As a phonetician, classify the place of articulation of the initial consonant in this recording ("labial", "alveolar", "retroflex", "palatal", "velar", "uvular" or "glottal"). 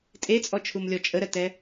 alveolar